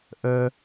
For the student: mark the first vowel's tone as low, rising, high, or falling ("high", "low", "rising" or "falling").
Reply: high